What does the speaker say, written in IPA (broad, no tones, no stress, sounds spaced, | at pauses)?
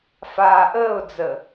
f aː ʔ əː ʊ̯ d͡z ə